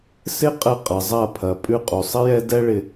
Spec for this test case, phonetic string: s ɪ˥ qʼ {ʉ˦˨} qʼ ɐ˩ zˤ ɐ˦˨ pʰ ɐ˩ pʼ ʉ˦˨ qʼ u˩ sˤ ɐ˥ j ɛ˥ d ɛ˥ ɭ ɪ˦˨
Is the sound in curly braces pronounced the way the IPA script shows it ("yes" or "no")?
no